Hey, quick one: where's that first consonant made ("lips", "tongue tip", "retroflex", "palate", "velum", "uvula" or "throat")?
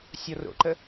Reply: tongue tip